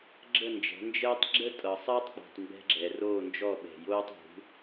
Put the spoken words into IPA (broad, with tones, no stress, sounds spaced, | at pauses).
ɡ͡ǁ ə˥˨ n d͡ʒ ɛ̤˩˥ n d͡ʒ əː˥ tˤ ɡ͡ǁ ə˥ tʼ ɤ˨ sˤ əː˥ tˤ k͡p ɔ̤˨ tˤ m b ɛ̤˥ ɡ͡ǁ ɛ˨ r oː˥˨ n d͡ʒ ɔ˥˨ ɓ ɛ̤˨ j oː˥ tˤ ṳ˩˥